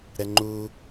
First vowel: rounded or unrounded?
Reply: unrounded